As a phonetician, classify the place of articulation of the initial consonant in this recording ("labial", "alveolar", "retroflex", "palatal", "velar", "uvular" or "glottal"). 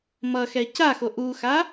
labial